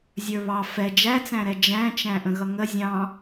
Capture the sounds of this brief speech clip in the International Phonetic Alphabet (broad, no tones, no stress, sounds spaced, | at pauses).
zʲ ə˞ β ɑ f ɛ d͡ʒ æ t͡s æ̃ ɾ ɛ d͡ʒ æ̃ t͡ʃ æ̃ ʔ ə̃ ɣ ʌ ŋ ə zʲ ɑ̃